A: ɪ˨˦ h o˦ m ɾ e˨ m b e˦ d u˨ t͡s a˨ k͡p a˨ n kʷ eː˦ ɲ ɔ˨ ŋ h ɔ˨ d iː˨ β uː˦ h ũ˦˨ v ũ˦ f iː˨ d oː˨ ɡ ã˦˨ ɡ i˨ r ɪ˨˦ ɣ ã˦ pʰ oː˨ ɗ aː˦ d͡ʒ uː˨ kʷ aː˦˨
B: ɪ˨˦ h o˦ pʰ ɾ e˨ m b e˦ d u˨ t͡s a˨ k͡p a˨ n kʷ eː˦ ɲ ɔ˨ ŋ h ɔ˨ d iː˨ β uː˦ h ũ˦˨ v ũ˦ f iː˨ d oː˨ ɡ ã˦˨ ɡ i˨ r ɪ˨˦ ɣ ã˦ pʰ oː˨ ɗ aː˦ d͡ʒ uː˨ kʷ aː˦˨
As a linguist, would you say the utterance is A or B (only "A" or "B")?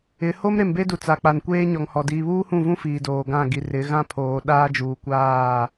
A